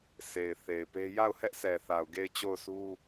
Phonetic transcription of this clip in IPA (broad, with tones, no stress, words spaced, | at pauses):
se˨ɪ̯ θe˨ɪ̯pe˦ ja˦˨ʊ̯hɛ˦ʔsɛ˨θa˨ʊ̯ ɡe˦˨ɪ̯t͡ɕo˦˨ʊ̯sʰu˦